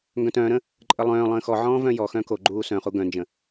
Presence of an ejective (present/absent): present